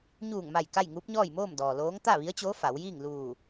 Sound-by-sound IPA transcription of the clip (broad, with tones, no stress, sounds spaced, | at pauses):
ɲ uː˧˩ ŋ m a˧˩ j k a˥˨ j ŋ uː˧˥ p̚ ɲ ɔː˥˨ j m oː˥˨ m d ɔː˩ l oː˧˥ ŋ t̪ a˥˨ ʋ i˧˥ ə̯ t͡ɕ oː˧˥ f a˩˧ w j iː˥˨ ŋ l uː˧˩